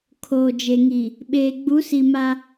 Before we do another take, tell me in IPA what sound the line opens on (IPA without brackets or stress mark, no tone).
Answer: kʰ